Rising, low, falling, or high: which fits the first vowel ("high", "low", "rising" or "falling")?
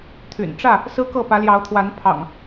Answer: low